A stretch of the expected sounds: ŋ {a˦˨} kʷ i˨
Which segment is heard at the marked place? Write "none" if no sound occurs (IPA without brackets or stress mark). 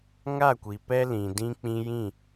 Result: a˦˨